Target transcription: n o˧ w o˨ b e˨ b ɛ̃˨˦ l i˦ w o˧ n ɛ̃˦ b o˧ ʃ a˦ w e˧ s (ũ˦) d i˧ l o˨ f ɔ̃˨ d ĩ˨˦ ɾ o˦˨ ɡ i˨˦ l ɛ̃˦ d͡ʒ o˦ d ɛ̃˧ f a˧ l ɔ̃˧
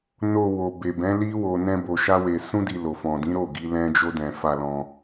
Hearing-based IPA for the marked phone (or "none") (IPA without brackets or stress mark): ũ˦